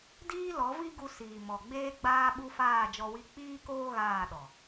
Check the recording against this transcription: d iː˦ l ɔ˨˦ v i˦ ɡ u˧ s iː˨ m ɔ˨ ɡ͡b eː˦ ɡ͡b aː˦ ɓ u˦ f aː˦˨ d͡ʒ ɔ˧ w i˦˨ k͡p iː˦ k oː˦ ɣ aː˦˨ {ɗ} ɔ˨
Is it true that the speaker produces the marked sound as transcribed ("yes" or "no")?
yes